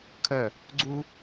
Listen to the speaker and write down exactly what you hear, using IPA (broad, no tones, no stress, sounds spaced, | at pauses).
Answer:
kʰ œ | ɡ͡ǀ u